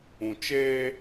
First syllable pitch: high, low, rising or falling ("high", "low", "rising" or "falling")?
low